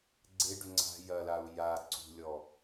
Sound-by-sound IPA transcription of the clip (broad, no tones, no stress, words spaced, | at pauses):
ɡ͡ǀeɖʏ ŋ͡ǀa̤ jɐlau̯ ja ǀṳlʲɔ